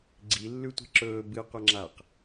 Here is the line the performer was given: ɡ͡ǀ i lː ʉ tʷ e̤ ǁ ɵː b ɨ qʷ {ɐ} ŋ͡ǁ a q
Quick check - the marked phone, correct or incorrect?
correct